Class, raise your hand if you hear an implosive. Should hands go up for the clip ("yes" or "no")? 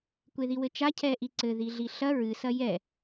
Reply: no